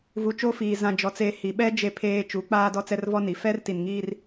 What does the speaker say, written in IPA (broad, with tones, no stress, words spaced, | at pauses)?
vu˨t͡ʃo˦fiː˨ zã˨d͡ʒɔ˨t͡seː˨ hi˨ ɓɛ˦ d͡ʒe˦pʰeː˦ t͡ʃu˨˦k͡paː˦ dɔ˦t͡sɛ˦rvɔ˦ni˨ fɛ˦rti˨nŋiː˦r